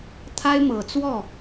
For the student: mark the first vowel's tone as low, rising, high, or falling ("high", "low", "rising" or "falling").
high